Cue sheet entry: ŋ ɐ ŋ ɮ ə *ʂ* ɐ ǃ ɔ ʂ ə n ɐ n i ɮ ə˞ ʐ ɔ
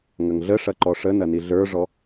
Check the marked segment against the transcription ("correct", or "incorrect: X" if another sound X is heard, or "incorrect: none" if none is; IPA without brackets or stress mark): correct